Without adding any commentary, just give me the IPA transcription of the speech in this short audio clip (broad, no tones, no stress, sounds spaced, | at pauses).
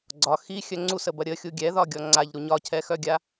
ɡ͡ǀ ɒ x i xʲ œ ŋ͡ǀ u s ə b ɐ ɾʲ ə xʲ u ɡʲ ɛ ð ɒ ɡʲ ɔ ŋ͡ǀ a ʎ ɾ u ɲ ɒ cʰ ɛ x œ ɡʲ a